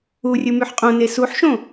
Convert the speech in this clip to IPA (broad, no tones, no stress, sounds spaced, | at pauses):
u rʲ ɯ m y ħ qʼ õ n e s u ħ ʃ õ